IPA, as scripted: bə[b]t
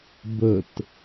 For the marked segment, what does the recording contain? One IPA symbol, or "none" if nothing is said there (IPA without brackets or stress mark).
none